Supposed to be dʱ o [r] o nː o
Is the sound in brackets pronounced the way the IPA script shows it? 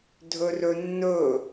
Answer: yes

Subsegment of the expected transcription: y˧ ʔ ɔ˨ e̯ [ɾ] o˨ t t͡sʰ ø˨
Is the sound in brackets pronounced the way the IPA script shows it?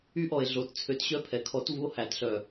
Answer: no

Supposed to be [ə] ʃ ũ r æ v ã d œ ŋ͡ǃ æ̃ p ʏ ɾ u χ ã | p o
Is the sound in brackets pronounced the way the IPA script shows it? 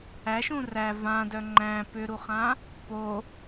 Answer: no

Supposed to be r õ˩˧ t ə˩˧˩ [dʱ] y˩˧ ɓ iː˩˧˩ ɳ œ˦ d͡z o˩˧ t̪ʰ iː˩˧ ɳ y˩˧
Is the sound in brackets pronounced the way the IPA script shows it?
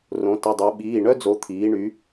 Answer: no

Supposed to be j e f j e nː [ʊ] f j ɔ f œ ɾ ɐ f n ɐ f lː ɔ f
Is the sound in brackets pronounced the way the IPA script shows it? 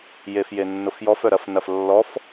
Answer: yes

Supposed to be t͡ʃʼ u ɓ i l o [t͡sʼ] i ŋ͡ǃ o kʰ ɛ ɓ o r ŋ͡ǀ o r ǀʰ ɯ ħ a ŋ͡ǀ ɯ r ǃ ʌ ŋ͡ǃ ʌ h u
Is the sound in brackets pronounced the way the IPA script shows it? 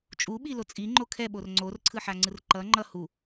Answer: yes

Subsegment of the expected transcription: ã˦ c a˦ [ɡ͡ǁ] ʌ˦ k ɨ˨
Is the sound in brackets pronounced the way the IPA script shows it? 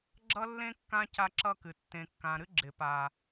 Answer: no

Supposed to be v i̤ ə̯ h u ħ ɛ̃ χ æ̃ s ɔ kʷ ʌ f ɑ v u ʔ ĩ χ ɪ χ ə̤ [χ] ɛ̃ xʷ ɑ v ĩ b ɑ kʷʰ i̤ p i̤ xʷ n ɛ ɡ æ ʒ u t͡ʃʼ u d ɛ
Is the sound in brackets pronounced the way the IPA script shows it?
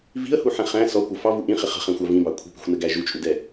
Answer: yes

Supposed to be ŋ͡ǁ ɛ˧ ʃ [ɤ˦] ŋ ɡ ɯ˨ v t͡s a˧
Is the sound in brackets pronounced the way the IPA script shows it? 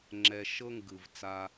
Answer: yes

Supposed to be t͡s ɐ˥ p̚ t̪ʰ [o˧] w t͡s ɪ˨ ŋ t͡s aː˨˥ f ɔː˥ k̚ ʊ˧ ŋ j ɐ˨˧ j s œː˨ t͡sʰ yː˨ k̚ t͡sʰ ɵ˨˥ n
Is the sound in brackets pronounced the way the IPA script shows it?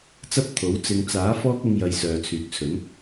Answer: no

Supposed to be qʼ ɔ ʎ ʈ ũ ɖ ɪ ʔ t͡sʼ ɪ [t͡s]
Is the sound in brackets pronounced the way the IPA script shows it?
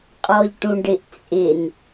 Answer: no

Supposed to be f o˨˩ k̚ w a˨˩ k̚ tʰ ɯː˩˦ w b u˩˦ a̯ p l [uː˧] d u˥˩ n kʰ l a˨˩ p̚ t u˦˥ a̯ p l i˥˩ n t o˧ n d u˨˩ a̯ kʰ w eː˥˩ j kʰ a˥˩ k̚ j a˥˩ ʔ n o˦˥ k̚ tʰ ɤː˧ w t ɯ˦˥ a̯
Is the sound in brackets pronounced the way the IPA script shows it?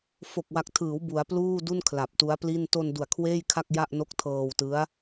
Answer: no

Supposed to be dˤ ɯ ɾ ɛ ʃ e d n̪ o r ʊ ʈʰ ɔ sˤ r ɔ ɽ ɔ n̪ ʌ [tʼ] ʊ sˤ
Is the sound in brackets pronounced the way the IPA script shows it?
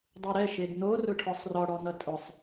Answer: yes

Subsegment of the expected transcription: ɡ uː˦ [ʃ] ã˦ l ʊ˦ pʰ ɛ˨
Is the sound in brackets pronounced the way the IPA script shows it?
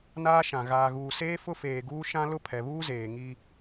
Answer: yes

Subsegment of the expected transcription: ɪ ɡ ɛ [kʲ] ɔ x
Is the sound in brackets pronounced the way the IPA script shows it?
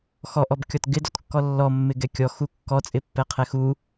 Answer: yes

